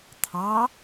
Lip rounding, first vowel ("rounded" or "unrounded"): unrounded